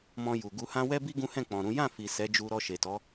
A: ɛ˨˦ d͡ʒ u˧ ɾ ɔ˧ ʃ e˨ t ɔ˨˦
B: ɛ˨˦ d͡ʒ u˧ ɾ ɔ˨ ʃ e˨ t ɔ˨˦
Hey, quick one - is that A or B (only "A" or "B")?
A